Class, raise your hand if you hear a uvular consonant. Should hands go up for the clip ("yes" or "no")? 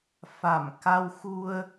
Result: no